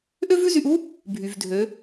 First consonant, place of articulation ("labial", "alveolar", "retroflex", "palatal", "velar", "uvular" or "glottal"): glottal